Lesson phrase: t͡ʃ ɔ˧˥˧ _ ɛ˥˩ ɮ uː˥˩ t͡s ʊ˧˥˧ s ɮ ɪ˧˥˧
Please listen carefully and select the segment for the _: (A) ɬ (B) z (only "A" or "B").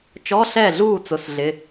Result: A